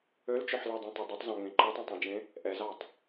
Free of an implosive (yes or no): yes